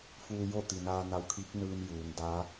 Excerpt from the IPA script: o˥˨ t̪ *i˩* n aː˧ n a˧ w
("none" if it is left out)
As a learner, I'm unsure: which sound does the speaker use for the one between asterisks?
i˩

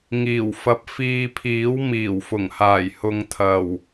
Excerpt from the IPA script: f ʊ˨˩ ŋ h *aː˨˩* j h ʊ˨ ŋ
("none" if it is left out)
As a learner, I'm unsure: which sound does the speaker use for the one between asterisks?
aː˨˩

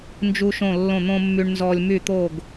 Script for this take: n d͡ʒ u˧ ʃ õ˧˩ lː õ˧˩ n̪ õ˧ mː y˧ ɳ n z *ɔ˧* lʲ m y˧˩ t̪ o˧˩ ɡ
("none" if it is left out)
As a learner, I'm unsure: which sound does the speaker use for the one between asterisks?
ɔ˧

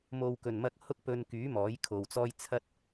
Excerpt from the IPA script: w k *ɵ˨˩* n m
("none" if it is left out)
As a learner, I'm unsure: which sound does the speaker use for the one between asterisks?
ɵ˨˩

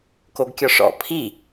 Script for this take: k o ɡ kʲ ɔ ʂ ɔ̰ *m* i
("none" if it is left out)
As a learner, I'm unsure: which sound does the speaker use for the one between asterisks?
pʰ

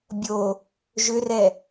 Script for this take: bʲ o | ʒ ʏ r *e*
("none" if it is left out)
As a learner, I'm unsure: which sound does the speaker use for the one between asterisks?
ɛ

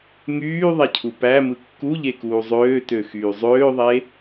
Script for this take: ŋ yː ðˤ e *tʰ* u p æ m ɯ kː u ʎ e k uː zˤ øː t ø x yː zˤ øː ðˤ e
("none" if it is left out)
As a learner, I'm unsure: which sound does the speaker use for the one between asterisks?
cʰ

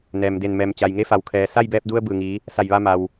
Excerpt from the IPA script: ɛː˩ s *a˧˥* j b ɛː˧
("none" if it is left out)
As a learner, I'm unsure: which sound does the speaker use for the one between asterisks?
a˥˨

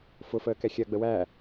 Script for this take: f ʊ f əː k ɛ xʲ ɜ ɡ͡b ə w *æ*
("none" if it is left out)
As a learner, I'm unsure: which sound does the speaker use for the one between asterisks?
æ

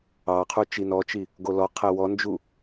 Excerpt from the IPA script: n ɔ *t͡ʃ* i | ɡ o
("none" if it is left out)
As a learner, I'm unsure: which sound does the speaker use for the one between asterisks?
t͡ʃ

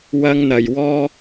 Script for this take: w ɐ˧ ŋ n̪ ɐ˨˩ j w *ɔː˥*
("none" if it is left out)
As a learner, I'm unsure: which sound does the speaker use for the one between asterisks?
ɔː˥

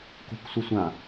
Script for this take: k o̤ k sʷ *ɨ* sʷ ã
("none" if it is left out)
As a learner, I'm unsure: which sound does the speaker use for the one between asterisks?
ɨ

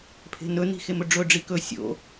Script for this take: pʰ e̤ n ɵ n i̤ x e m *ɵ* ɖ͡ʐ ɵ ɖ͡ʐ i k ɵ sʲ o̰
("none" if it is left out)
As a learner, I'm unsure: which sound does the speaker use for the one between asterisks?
ɵ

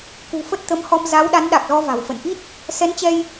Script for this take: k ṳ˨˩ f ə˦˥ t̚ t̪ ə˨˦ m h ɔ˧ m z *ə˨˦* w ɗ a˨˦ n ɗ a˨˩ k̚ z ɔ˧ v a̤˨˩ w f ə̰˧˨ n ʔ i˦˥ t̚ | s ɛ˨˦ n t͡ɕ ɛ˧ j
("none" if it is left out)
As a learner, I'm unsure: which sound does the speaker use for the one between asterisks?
a˨˦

